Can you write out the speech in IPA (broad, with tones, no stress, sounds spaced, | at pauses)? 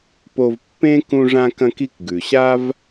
p o˧ v pː ẽ˥ k ũ˧ ʐ ã˧ k ɐ̃˧ k i˧ k ɡ ʉ˩ ɕ a˥ v